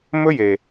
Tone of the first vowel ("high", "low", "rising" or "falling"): high